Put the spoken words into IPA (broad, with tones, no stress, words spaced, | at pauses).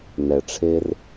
nɛ˨ʈ͡ʂʰe˧r